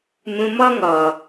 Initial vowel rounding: rounded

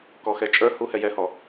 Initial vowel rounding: rounded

